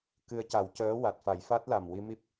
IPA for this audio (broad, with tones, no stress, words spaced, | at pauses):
kɨ˧ə̯ca˨˩˦wcəː˧˥ wa˨˩t̚fa˨˩˦jfa˦˥t̚la˨˩m wi˧mi˦˥p̚